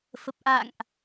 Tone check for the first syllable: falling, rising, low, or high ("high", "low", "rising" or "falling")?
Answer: low